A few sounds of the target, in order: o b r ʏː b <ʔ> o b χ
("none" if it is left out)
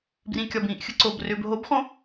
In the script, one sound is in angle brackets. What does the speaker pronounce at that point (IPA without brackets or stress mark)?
ɦ